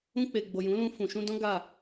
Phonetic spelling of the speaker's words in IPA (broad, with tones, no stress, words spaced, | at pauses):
ũ˧k͡pe˨ɡ͡bo˨ jũ˨˦lũ˧fũ˨ ʃũ˧dɔ̃˦ ɡa˦˨